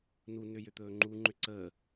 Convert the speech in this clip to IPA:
n u n ʏ j ʏ t̪ ɵː ŋ͡ǃ u ŋ͡ǃ ʏ ǀ əː

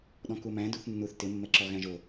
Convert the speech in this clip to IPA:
ɗ ɔ̃ k u m æ̃ d u θ nː u θ t ɪ mː ɛ ǁ ɔ ɣ æ̃ ʒ o

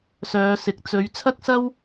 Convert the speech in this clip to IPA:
s œː˨˧ s ɪ˨ k̚ t͡s ɵ˨˧ ɥ t͡sʰ ɐ˥ k̚ s ɐ˥ w

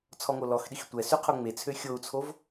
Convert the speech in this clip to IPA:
t͡sʰ ɔ ŋ o l ɔ x ɗ i x tʷ ɛ s y qʰ o ŋ͡m e t͡sʰ ø xʲ o u̯ t͡sʰ o v

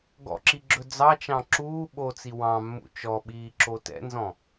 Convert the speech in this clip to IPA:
ɡ ɔ̰ ǁ i ɡ͡ǁ ɵ d͡z ɑ t͡ʃ ɑ̃ ǁ uː ɓ o t͡s i w ɑ̃ mː ṵ t͡ʃ ɔ ɓ iː ǁ o t ɛ̰ n z ɔ̃

